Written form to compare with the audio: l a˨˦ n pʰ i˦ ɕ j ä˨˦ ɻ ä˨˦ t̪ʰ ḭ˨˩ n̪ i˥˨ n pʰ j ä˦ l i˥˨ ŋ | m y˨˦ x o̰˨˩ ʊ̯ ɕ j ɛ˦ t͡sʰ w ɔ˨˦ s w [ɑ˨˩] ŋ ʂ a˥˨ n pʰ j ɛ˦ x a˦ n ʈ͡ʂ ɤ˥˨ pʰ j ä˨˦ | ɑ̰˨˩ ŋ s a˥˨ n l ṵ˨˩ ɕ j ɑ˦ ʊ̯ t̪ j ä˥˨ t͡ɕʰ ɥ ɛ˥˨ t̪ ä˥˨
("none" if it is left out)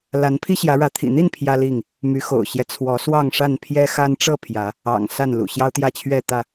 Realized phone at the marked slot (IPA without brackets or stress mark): ɑ˥˨